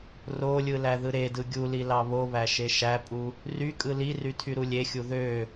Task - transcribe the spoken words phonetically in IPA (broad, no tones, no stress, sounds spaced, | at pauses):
r o lʲ ɯ l æ ð ɯ ɾ e d ɯ ɡʲ u l i l ɑ β o β æ ʃ e ʃ æ pʼ u | r y kʼ ɯ l i r y tʰ y ɾ u lʲ e xʲ u ð ø